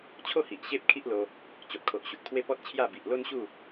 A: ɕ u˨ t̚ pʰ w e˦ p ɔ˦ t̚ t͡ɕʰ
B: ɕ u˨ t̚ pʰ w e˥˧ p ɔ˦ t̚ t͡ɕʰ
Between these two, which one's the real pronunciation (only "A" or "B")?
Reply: A